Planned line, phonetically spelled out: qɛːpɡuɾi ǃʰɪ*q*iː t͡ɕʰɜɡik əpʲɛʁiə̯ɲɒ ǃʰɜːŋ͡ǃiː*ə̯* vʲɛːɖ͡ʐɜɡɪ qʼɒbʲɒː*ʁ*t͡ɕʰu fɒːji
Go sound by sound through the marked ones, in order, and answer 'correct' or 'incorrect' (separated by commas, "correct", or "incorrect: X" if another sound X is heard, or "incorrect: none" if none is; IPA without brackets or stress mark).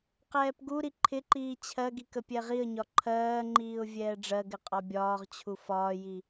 incorrect: ǃ, incorrect: ʊ̯, correct